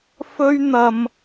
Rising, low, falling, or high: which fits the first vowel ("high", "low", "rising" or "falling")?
high